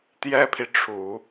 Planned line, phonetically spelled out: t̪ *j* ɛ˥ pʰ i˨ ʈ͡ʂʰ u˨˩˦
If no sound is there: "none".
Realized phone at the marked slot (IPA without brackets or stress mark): j